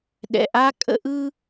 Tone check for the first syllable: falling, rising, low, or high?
high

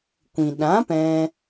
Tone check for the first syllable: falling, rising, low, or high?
low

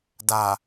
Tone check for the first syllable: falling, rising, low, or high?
low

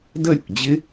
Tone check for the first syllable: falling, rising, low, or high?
falling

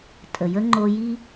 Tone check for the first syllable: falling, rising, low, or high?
low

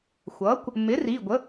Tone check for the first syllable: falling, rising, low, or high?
rising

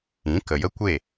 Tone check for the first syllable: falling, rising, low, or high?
rising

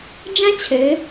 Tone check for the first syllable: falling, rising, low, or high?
high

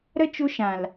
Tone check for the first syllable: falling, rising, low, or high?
high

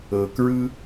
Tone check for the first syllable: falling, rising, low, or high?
low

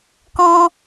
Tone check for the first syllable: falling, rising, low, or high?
high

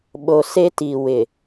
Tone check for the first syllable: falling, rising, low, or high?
low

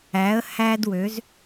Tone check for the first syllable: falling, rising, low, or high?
rising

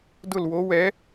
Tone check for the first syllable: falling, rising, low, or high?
falling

